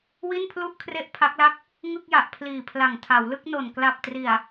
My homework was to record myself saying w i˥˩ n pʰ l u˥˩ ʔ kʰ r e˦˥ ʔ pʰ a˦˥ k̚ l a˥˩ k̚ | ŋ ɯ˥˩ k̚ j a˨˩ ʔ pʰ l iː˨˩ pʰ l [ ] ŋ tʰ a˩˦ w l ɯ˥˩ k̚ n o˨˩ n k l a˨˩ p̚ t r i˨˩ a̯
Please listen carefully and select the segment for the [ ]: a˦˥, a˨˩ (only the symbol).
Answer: a˨˩